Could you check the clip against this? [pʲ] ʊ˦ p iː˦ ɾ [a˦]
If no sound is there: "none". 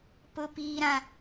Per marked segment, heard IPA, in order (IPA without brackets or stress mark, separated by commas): p, ã˦